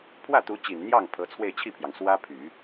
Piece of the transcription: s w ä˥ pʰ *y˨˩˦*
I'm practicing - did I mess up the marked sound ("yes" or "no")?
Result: no